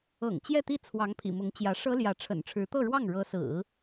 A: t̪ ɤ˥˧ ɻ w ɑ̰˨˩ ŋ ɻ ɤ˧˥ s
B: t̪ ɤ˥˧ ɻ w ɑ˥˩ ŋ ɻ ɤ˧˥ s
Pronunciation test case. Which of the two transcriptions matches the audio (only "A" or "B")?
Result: B